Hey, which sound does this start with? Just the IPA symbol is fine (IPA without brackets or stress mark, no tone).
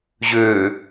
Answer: ʑ